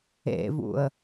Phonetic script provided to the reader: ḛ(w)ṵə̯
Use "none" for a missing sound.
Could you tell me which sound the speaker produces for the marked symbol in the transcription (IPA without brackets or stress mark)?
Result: v